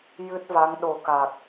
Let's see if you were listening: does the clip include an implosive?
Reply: yes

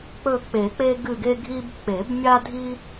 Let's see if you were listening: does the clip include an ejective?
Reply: no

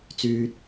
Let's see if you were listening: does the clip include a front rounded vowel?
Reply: yes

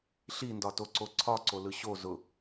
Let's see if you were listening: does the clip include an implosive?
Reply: no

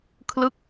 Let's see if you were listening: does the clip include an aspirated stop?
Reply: yes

